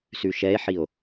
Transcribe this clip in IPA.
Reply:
s ʉ ʃ ɛ e̯ ħ i o̯

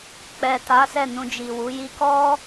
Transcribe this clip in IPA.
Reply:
k͡p ɛ˨ t a˨˦ s ɛ˦˨ n ũ˧ d͡ʒ i˨ w u˨˦ j i˧ k ɔ˦

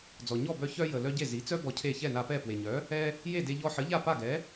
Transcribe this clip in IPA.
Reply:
d͡z ɔ˩ ɲ ɔ˥˩ b œ˧ ç œ˧ j ə˩ l œ˧ ɟ e˥˩ z i˩˥ t͡s œ˥ b ɔ˧ cʰ e˥˩ ç ɛ˥˩ n a˧ p ɛ˥˩ p w e˩ ɲ œ˩˥ | ɛ˧ | j e˥˩ d e˧ ʎ ɔ˧ ħ ə˩˥ ʎ a˥˩ p a˥˩ ɡ ɛ˩˥

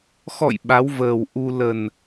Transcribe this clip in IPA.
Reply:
x ɔ̰˧˨ j ɓ a˨˦ w v əː˨˩ w ʔ u˧ l ə˨˩ n

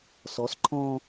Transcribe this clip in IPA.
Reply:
s ɔ s ǃʰ ɔ̃

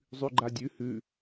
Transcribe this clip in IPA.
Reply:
zˤ ʉ ɡ͡ǃ a dʲ ʉ h ʉ

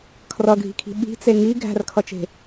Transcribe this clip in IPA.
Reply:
kʰ r ʌ ɡʱ i̤ kʰ i̤ ɓ i̤ t͡s e ŋ i ɡʱ æ̤ r kʰ ʌ t͡ʃ e̤

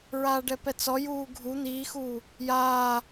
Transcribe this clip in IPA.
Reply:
ɹ aː ɖ ɛ p ɛ t͡s ɔ j uː ɡʱ u n̪ iː x u | j aː

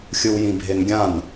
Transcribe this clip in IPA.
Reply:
xʲ ɯ w j ĩ bʱ e n ɡʲ ã n

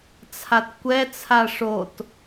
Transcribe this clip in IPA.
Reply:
t͡sʰ a t kʷ ɛ t͡sʰ a ʂ o t

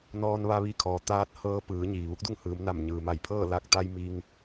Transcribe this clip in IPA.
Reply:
n ɔː˧ n ʋ a˧ ʋ i˧ kʰ ɔː˩ t̪ aː˧˥ t̚ h ɤː˧˥ p ɯː˩˧ ɲ iː˩ ʋ u˧˥ k̚ d u˥˨ ŋ h ɯː˩˧ m n a˧˩ m ɲ ɯː˩ m a˧˩ j pʰ ɤː˥˨ l a˧˩ k̚ t̪ a˧ j m i˧ ŋ

